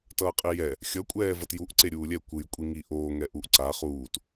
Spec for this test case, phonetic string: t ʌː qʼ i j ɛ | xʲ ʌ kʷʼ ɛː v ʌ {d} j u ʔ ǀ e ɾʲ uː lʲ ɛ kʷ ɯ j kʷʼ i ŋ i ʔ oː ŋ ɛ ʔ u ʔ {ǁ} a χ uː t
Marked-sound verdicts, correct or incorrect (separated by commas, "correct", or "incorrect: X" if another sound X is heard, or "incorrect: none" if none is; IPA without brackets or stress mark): incorrect: t, incorrect: ǀ